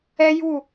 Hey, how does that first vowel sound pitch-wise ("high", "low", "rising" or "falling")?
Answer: high